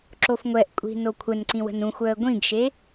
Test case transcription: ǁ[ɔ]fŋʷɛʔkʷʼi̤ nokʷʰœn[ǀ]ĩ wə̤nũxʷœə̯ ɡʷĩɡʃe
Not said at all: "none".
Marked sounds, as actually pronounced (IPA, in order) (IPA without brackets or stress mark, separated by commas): o, ǀ